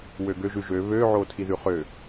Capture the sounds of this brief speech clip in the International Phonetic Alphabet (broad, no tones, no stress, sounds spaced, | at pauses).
w ø ɡ ø ʒ ʉ ʒ ø β ø ʕ o tʰ i ð ʉ χ ø